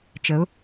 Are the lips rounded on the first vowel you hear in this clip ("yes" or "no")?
no